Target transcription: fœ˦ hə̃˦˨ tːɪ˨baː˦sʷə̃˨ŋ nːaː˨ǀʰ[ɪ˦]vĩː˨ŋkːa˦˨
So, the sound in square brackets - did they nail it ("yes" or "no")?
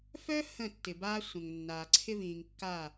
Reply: yes